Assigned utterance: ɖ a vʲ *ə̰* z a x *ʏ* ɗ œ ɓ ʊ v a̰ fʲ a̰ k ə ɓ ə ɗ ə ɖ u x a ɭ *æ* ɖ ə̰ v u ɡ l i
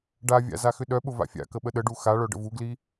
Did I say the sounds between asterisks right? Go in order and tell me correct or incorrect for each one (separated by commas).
incorrect, correct, incorrect